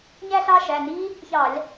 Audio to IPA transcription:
ɲ æ˥˧ ɬ ɑ˥˧ ʃ æ˩˧˩ n i˦˥ | ç ɑ˧˩˧ lʲ

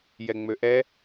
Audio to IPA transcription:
j ɛ ŋ͡m ø ʔ ɛ

